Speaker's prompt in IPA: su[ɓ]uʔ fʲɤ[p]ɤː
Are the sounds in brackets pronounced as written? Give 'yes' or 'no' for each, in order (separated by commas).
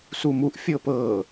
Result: no, yes